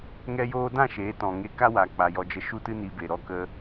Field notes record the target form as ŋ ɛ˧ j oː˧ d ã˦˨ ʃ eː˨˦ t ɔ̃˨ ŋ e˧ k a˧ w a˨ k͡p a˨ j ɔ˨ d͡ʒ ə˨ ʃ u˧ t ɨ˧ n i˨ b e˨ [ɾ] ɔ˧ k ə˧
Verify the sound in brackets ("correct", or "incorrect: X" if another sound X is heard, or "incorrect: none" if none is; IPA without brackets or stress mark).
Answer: correct